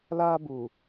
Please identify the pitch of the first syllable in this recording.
high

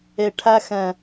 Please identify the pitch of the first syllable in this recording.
low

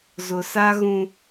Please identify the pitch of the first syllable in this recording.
low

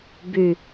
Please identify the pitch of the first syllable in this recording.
low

